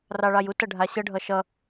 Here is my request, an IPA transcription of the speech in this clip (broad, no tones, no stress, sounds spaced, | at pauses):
r ɑ ɭ ɑ j u t ʌ ɖʱ a ɕ ɤ ɖʱ ʌ ʃ ʌ